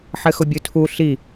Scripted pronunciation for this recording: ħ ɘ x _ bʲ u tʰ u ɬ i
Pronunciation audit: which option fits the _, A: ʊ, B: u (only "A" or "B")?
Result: A